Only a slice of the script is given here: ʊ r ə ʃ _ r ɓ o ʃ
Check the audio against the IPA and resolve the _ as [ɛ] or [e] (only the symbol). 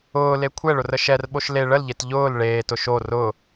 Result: ɛ